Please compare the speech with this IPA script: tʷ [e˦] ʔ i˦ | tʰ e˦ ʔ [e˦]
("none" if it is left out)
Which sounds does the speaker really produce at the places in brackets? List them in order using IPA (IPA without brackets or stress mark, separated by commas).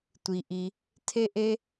i˦, e˦